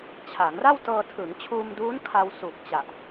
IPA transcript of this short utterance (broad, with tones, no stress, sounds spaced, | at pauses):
t͡ɕʰ a˩˦ ŋ r a˥˩ w t ɤː˧ tʰ ɯ˩˦ ŋ t͡ɕʰ uː˧ m d uː˦˥ n kʰ a˧ w s u˨˩ k̚ t͡ɕ a˨˩ ʔ